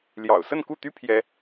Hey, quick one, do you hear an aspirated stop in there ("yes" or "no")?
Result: yes